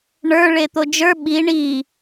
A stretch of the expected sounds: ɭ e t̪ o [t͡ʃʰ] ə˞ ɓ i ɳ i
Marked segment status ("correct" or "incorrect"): incorrect